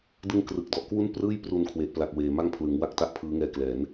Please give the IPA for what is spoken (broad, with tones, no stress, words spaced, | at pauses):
dɯ˦˥ŋ krɯ˨˩k̚dɔ˨˩ʔ kwu˥˩nprɯː˥˩j pru˧nkʰwe˨˩ʔpla˨˩k̚ weː˨˩ma˥˩ŋpʰlɯ˩˦ŋwa˥˩k̚ ta˥˩ʔpʰɯː˦˥ŋɛː˧klɛː˩˦n